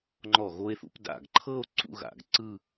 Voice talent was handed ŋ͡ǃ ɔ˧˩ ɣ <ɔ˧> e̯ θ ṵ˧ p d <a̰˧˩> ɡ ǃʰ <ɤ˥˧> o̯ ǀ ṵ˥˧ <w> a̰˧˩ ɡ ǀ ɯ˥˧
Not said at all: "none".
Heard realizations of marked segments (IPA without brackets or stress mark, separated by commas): o˧, a̰˧˩, ɤ˥˧, ɣ